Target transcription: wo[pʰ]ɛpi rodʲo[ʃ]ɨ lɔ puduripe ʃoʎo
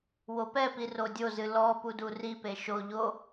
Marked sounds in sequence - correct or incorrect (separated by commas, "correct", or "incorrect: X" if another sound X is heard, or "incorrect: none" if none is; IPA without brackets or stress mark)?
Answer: incorrect: p, incorrect: z